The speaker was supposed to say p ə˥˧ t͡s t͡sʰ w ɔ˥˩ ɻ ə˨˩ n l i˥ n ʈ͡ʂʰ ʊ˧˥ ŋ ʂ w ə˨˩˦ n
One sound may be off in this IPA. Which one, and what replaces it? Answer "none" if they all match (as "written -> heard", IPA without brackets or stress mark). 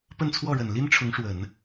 t͡s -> n